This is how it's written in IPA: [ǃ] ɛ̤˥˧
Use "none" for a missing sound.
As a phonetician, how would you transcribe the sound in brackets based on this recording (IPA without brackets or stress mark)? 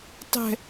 tˤ